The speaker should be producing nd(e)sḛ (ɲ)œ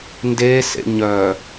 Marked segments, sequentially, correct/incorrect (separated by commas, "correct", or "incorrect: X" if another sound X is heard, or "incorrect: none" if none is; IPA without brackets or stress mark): correct, correct